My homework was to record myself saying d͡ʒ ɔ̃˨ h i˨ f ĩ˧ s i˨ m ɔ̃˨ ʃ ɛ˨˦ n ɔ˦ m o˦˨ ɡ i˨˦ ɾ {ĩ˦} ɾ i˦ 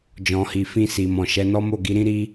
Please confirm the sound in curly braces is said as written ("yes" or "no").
yes